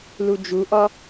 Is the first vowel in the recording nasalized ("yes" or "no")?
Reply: no